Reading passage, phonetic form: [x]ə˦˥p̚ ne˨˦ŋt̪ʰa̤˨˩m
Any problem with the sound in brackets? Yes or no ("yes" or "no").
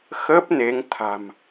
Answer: no